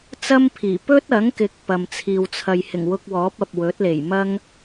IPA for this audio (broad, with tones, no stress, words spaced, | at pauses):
t͡sɐ˥mpʰiː˨˩ pɵ˥t̚ɐ˨˥ŋkɪ˨˥k̚ pɐ˨mt͡sʰiː˨wt͡sʰɐ˨j hɪ˨˩ŋwʊ˧k̚wɔː˨˥p̚ɐ˨p̚ wɵ˨˥t̚le˨˩j mɐ˥ŋ